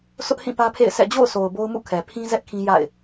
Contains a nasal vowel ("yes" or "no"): yes